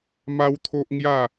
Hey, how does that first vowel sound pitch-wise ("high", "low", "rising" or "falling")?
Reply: high